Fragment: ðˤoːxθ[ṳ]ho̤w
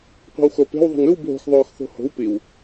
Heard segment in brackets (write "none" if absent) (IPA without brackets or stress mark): o̤